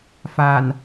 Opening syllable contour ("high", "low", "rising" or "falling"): low